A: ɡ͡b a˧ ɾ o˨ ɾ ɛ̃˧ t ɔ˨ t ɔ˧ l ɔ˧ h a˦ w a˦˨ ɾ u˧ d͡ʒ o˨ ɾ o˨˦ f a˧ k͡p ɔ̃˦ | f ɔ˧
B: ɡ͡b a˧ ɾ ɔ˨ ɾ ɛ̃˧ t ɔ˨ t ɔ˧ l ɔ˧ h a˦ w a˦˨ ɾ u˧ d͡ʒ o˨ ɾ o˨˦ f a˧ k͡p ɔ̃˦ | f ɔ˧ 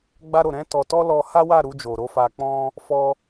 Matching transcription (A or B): A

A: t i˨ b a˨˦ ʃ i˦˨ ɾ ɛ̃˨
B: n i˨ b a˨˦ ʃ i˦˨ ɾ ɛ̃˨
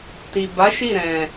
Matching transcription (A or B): A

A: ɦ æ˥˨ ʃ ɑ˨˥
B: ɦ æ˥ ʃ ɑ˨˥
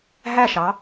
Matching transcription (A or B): A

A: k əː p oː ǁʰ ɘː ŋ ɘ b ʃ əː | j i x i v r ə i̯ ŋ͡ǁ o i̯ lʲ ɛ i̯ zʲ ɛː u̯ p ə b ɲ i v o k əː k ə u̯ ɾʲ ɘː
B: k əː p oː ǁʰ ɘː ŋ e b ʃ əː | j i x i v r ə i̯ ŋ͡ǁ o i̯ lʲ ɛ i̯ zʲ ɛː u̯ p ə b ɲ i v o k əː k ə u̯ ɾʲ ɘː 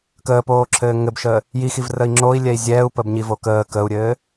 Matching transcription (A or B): A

